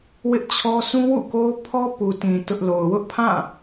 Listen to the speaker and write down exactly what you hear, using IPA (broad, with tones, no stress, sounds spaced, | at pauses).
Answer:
w ɪ˦ ʔ t͡ɕʰ ɔ˦ s ũ˦ w ṵ˦˨ k o˦ ʊ̯ pʰ ɔ˦ p u˨ t ĩ˨ t ʊ˦ ʔ l o˨ ʊ̯ w ʊ˦ ʔ pʰ ã˦˨